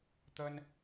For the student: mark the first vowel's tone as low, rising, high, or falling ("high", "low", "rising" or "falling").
high